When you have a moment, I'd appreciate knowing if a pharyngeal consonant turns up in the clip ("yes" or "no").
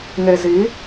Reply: no